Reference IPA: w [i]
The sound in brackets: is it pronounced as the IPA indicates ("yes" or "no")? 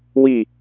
yes